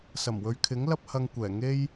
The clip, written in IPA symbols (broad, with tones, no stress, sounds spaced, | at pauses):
s ɐ˨˩ m w ɵ˨ ɥ kʰ ɪ˨˥ ŋ l ɐ˥ p̚ h ɐ˧ ŋ kʷ ɛː˨˩ ŋ e˥ j